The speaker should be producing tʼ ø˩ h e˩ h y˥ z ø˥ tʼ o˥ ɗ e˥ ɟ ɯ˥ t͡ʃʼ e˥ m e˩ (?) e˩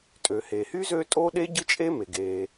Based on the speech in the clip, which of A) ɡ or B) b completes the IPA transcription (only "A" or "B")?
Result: A